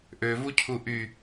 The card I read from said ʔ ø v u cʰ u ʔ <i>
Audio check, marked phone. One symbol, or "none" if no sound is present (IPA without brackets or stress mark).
y